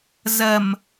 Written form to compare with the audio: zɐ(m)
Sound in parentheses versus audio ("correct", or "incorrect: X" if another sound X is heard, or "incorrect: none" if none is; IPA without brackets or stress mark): correct